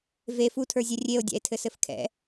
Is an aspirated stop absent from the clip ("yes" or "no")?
no